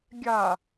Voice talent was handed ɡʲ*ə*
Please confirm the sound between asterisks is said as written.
no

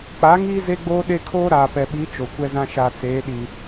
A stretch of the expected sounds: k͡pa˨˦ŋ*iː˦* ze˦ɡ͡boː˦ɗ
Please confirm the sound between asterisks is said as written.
yes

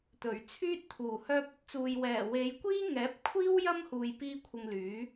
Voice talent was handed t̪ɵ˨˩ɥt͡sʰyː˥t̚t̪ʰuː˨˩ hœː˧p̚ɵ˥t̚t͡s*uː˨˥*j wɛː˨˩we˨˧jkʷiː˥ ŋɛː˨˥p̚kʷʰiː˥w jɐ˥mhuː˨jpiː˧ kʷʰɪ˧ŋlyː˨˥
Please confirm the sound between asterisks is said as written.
no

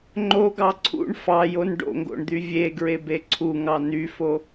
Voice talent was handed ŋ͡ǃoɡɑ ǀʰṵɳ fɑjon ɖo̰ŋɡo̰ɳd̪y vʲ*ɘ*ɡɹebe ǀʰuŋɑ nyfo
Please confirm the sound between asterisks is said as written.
no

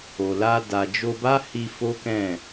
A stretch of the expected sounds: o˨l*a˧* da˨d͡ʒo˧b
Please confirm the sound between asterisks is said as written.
yes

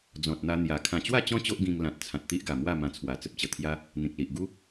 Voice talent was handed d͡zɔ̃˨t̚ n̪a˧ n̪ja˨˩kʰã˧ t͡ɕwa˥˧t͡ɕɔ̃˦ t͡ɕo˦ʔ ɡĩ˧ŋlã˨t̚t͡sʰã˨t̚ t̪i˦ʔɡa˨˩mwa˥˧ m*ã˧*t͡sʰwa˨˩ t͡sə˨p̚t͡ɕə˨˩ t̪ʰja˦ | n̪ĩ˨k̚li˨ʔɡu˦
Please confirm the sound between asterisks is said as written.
yes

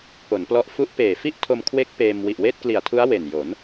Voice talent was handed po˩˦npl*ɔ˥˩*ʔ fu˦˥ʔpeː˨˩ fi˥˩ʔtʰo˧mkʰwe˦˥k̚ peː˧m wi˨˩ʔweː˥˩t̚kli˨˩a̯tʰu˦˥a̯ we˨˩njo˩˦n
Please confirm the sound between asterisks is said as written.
no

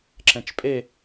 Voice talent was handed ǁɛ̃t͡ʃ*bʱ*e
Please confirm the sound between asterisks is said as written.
no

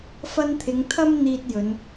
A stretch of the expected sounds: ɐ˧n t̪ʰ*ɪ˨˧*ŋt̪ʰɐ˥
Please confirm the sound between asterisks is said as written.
yes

